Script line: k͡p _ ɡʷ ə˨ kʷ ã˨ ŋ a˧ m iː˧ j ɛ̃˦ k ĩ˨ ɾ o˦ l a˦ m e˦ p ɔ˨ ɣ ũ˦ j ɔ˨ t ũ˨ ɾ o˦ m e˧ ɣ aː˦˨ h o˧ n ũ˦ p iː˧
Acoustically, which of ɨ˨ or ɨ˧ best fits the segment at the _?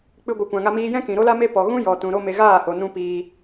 ɨ˧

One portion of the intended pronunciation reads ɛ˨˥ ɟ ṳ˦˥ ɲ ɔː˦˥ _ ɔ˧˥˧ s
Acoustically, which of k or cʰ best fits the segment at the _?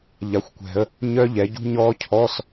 cʰ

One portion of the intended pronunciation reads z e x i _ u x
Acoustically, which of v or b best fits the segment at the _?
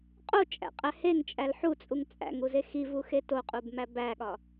v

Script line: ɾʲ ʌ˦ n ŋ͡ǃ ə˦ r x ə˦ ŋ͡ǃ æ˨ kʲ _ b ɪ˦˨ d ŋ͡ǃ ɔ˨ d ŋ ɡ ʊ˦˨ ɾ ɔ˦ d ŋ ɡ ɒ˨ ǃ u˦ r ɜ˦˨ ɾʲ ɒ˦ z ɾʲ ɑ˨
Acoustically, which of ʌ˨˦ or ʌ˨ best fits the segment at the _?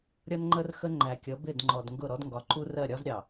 ʌ˨˦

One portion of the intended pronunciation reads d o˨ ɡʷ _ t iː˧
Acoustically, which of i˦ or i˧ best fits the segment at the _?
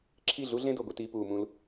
i˧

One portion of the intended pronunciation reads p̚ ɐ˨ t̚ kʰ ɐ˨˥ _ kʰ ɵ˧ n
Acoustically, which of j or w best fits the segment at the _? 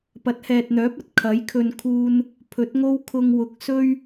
j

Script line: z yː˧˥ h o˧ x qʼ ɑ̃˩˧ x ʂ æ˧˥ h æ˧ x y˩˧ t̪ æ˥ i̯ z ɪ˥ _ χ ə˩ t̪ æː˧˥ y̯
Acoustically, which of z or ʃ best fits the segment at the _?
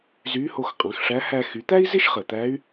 ʃ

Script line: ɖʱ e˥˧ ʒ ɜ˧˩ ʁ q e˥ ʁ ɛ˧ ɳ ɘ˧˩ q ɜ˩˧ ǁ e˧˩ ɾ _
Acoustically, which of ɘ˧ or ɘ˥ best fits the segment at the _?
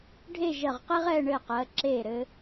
ɘ˧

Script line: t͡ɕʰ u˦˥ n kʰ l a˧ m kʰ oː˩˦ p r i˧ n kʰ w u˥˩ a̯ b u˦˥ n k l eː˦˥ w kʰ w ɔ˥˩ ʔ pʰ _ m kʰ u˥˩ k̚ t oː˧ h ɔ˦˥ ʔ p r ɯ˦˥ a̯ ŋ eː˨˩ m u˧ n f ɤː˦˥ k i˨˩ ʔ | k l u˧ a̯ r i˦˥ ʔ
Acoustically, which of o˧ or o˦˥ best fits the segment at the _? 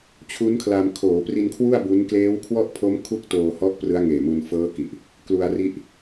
o˦˥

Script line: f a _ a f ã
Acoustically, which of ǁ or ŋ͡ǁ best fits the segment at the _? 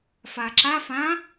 ǁ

